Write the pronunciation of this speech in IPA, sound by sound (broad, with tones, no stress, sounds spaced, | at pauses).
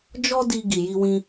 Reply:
d͡ʒ ɔ˦ d i˧ ɡ i˨ j i˧ w ĩ˧